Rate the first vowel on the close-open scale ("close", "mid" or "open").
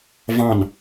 open